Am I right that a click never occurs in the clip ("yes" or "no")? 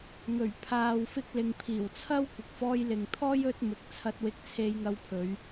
yes